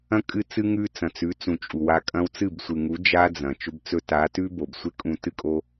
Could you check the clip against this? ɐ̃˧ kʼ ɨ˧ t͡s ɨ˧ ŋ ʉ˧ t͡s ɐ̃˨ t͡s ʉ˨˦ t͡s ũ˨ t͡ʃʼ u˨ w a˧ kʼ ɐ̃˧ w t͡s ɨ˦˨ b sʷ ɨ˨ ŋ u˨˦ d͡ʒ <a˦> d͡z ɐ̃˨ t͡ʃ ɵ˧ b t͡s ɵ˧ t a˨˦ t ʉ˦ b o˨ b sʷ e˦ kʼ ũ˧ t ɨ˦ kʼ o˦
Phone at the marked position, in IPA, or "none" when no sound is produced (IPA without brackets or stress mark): a˦